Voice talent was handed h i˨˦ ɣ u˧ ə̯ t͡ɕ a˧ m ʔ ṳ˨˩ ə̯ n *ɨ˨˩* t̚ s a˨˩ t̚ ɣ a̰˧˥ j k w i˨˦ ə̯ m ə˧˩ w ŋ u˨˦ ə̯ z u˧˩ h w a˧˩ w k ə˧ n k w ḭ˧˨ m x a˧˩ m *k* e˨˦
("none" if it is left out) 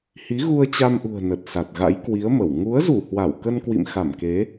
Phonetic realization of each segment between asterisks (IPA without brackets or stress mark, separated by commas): ə˨˩, k